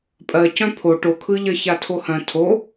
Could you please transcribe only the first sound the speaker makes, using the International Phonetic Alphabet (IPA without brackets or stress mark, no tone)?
pʼ